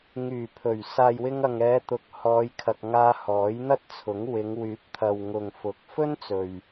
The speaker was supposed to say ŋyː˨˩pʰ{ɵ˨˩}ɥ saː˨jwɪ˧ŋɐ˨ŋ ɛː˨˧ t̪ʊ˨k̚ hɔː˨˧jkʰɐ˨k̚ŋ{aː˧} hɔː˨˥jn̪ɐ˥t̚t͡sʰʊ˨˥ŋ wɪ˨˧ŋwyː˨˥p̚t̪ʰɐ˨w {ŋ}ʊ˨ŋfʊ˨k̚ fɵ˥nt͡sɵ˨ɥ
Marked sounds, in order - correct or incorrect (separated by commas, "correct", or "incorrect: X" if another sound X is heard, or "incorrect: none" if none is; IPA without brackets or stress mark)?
correct, correct, correct